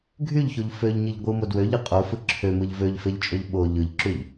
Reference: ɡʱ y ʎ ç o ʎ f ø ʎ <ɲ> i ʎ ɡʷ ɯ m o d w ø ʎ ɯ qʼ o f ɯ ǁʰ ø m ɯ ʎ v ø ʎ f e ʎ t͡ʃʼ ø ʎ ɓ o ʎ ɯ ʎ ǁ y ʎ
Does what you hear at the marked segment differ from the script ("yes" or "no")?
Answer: no